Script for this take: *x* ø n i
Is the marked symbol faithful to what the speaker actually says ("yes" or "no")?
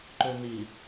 no